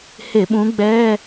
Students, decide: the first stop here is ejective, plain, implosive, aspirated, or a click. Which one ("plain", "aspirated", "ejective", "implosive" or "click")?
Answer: implosive